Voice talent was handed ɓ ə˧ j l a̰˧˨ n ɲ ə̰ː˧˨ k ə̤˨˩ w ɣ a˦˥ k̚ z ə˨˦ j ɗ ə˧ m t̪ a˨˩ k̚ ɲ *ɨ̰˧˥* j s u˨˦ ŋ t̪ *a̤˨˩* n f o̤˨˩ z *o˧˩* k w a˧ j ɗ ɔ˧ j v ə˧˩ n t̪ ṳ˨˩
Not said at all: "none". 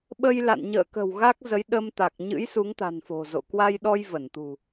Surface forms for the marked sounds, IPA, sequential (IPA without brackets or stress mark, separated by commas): ɨ̰˧˥, a̤˨˩, o̰˧˨